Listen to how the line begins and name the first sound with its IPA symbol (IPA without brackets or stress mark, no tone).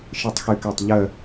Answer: ʃ